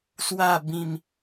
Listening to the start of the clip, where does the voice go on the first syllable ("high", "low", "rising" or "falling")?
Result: falling